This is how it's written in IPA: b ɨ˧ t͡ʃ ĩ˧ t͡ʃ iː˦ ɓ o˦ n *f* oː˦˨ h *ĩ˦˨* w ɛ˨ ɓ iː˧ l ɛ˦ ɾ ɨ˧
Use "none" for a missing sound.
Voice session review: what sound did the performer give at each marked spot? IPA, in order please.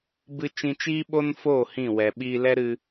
f, ĩ˦˨

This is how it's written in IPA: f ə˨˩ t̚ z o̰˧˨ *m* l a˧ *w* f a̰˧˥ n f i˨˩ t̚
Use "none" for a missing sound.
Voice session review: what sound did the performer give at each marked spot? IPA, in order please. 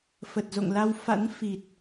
ŋ, w

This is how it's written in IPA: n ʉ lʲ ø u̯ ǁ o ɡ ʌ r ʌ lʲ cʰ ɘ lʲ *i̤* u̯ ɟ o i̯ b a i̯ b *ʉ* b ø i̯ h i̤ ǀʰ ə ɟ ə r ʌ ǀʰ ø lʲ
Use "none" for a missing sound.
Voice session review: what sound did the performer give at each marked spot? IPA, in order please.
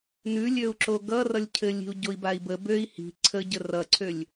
i̤, ə

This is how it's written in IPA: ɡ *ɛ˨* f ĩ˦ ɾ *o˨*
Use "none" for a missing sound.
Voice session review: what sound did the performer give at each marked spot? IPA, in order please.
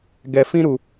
ɛ˨, u˨

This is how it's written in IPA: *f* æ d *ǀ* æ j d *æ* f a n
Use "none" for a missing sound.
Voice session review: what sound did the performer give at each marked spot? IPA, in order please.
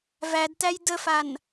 v, t, ə

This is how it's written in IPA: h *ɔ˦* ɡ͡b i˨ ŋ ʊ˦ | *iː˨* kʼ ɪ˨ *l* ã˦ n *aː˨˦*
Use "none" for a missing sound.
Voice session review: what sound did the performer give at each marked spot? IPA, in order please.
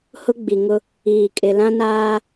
ʊ˦, iː˨, l, aː˦

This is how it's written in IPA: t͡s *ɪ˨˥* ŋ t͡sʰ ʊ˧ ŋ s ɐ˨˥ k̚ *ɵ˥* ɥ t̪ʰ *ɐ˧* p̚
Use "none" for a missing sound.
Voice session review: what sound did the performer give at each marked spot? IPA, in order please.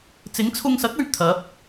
ɪ˨˥, ɵ˨, ɐ˨˥

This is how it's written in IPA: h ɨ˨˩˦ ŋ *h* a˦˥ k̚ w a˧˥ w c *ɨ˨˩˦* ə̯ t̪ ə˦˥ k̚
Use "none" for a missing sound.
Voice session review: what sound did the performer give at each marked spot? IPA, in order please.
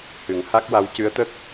h, ɨ˧˥

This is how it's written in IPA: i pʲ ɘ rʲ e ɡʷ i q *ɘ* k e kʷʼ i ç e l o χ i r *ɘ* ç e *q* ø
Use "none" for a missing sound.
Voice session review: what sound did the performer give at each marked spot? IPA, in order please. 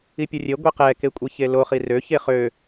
ɛ, ø, χ

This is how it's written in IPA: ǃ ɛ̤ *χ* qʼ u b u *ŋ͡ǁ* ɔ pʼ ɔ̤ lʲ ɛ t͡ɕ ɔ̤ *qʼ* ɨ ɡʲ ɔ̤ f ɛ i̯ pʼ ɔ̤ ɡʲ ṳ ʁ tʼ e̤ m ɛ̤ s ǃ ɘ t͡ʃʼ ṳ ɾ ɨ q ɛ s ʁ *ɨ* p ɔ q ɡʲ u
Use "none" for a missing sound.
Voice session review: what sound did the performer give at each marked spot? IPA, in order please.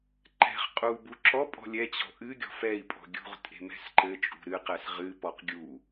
χ, ǁ, ʔ, ɨ

